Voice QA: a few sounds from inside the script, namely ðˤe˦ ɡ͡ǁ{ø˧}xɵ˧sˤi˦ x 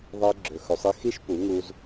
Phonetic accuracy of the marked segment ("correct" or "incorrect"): incorrect